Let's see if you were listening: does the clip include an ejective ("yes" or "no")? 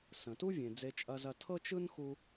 yes